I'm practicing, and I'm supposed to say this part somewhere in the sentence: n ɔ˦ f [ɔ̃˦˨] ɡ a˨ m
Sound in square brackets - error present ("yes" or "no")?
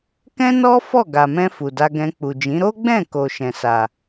yes